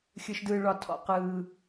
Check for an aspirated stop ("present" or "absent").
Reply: present